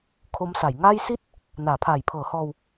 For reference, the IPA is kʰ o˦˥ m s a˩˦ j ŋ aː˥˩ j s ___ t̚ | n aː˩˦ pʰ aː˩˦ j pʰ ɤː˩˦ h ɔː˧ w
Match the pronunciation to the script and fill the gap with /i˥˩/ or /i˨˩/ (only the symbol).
i˥˩